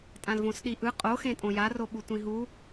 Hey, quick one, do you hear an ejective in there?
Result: yes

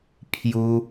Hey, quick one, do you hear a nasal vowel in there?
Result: no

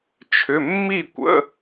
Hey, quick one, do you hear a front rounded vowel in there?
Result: yes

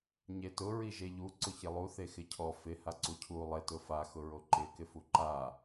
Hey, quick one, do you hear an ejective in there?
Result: no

